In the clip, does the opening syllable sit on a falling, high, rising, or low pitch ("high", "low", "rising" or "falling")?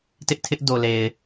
high